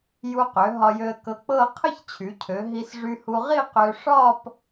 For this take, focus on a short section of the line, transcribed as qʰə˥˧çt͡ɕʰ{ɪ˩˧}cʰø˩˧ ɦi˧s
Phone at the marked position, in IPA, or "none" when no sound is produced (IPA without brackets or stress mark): y˩˧